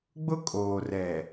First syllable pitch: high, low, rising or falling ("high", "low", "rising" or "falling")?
high